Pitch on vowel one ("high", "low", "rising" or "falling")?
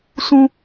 low